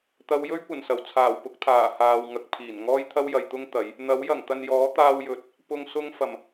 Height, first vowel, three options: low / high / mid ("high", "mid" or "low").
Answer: low